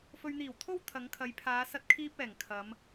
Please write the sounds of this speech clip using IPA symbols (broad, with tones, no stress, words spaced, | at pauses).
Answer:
fɵ˨ɥn̪iː˨˩wt̪ʰo˧w t̪ʰɐ˨˧ŋkʰɐ˨˧j pʰaː˨˧ sɐ˧t̚kʰiː˧p̚ ɛː˨˩ŋ kʰɐ˨˧m